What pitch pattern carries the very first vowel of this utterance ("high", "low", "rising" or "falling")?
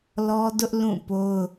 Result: high